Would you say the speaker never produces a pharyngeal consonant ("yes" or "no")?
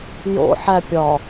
no